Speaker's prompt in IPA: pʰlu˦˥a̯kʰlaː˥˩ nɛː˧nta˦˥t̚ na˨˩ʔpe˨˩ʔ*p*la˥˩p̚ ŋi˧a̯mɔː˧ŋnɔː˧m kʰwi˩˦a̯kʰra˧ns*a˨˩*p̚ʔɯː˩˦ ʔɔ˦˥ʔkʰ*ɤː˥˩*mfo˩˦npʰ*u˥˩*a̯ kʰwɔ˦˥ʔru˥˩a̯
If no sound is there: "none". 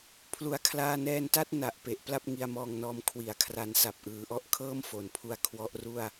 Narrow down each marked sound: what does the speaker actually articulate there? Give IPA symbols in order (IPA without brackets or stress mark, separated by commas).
p, a˨˩, ɤː˥˩, u˧